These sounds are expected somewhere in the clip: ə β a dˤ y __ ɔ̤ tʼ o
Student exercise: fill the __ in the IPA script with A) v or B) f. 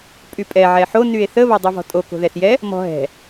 A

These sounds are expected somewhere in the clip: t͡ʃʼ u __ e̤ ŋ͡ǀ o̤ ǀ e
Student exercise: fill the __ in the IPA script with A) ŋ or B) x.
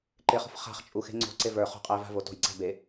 B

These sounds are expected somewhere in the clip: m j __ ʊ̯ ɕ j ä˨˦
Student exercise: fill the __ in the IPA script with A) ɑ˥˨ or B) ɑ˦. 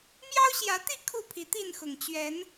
B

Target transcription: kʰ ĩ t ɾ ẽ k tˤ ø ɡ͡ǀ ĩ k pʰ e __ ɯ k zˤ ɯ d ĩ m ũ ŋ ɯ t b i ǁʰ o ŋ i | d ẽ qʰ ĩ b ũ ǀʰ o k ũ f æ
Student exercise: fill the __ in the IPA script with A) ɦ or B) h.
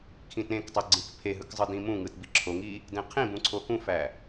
A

